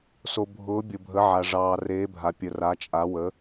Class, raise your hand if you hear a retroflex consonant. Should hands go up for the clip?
yes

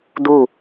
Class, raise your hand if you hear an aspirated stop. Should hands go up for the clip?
no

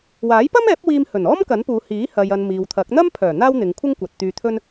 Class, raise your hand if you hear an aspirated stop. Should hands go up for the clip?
yes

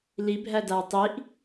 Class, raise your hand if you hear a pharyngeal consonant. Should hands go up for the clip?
no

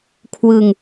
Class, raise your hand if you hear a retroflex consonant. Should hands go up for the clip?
no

